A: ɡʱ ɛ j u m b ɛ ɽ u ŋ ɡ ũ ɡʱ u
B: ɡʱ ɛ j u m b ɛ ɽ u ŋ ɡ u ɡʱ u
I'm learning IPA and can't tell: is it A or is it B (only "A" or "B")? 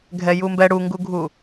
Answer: B